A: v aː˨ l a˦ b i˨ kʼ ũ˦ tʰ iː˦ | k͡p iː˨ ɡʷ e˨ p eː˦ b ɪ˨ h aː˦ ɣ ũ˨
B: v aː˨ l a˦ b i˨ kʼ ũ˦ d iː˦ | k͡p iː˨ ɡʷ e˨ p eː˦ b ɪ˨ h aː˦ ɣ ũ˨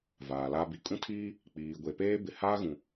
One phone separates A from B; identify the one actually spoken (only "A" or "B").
A